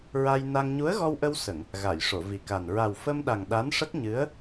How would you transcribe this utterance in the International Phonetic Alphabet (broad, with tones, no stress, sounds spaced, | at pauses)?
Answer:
ɹ a˧ j n a˧ ŋ ɲ u˧˥ ə̯ ɣ ɔ˧ w ʔ ə˧ w s ə˨˩˨ ŋ | ɣ a˨˩˨ j ʂ o˨˩˨ v i˨˩ k a˨˩ n ɹ a˨˩ w f ə˧ m ɗ a˨˩ ŋ ɗ a˧˥ n ʂ ə˦˥ k̚ ɲ ɨ˧˥ ə̯